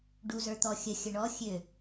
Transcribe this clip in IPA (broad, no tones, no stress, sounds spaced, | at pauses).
ɖ u z ə˞ t̪ ɔ xʲ ə xʲ ə ɳ ɔ xʲ ø